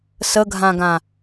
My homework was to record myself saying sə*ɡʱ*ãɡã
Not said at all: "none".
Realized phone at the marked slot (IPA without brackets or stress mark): ɡʱ